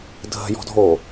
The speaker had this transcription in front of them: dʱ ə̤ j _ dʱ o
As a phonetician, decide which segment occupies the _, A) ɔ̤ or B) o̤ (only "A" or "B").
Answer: A